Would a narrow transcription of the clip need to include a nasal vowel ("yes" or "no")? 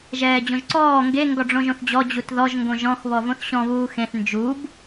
yes